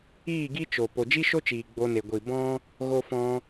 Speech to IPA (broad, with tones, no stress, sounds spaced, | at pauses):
iː˦˨ ɡ i˦ t͡ʃ o˨ p o˨ d͡ʒ i˦ ʃ o˦ t͡ʃ iː˨ ɡ͡b o˧ n e˨ ɡʷ i˨ b ɔ̃˦ | ɣ o˧ f ɔ̃˧